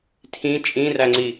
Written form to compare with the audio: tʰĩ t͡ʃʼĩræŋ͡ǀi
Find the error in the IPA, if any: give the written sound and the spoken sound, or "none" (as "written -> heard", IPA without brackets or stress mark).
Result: none